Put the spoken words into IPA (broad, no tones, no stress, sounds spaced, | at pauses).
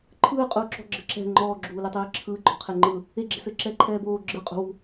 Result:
ǃʰ ɯː qʼ uː ǁ ɔ̤ ɡ͡ǁ ɘ ǁ ɛ̤ ŋ͡ǃ ɔː ɡ͡ǁ uː l e tˤ ɘː ǁʰ ɯː ɡ͡ǃ ɔ̤ qʰ e ŋ͡ǃ ɯ | e ɡ͡ǁ e̤ s ɘː ǁ ɛː ǃʰ ɛː b oː ɡ͡ǁ ɯ qʼ ṳ w ṳ